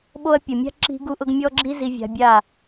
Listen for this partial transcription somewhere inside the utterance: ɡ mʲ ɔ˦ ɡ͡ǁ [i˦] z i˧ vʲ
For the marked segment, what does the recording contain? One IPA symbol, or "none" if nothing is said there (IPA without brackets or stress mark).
i˦